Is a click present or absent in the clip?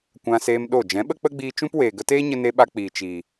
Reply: absent